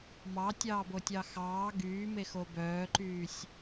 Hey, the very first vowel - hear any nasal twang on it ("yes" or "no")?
no